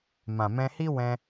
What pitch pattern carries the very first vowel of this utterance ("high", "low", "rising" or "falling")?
low